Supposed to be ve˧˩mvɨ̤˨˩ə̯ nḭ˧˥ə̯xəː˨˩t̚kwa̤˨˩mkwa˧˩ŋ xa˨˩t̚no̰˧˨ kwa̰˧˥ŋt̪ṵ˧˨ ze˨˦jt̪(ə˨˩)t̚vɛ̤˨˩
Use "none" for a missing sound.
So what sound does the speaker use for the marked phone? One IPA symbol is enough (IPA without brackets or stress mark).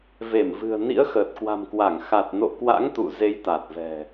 a˨˩